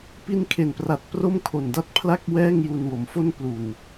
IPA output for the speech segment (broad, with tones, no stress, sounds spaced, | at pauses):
p i˦˥ n kʰ e˨˩ n p r a˨˩ t̚ p r o˥˩ m kʰ o˨˩ n d a˥˩ t̚ pʰ l a˥˩ k̚ w ɛː˥˩ ŋ j u˧ n w o˩˦ m f o˥˩ n p l u˨˩ n